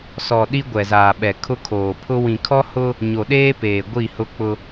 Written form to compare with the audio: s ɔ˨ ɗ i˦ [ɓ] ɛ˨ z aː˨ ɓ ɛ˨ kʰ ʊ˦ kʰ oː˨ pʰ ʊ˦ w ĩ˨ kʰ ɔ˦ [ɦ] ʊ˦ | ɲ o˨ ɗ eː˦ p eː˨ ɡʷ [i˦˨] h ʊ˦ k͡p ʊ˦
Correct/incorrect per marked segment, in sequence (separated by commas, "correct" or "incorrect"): incorrect, incorrect, correct